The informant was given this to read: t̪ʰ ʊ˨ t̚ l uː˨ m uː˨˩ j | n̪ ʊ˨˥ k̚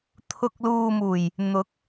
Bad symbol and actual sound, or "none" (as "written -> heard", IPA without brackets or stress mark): t̚ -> k̚